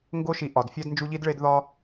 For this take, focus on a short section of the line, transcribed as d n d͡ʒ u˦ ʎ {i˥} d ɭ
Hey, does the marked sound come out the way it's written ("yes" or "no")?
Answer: yes